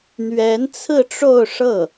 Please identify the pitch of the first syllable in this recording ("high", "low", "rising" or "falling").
rising